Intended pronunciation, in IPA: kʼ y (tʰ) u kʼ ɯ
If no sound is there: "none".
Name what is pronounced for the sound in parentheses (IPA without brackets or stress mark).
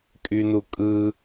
n